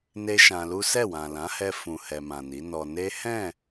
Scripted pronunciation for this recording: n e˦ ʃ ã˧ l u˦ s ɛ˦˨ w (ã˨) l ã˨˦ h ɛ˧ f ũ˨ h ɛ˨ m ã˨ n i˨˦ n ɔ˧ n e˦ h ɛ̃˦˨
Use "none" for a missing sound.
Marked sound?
ã˨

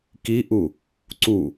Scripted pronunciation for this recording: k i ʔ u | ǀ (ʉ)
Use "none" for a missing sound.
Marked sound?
u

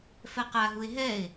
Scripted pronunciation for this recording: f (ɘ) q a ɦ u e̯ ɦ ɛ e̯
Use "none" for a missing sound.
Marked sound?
ɛ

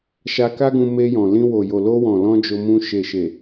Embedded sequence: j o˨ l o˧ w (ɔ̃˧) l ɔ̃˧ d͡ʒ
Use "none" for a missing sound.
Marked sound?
ɔ̃˨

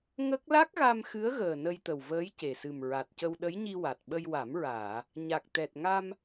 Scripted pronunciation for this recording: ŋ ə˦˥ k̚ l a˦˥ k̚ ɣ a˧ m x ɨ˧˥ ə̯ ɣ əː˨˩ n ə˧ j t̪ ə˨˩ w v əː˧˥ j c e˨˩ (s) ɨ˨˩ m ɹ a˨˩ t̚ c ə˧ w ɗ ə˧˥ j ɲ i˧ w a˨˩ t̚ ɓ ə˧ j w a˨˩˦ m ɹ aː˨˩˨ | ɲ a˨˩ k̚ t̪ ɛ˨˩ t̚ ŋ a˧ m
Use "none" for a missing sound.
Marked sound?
s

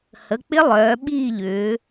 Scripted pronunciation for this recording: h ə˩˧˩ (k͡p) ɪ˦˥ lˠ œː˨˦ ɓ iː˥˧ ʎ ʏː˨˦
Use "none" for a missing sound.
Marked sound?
k͡p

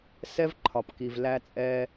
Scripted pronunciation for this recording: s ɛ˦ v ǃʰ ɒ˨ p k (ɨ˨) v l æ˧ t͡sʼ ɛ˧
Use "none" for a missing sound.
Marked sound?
i˨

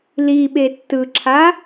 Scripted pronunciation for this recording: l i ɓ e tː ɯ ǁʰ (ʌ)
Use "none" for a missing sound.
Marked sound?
a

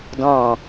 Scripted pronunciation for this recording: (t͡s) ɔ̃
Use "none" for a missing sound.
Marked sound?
d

